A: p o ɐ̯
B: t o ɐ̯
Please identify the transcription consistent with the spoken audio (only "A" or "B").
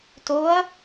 B